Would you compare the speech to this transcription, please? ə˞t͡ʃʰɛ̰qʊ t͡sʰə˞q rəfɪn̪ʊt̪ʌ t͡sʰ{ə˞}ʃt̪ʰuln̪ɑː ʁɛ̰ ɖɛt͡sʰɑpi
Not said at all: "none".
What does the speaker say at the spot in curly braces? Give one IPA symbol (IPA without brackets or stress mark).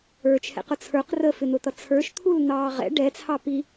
ə˞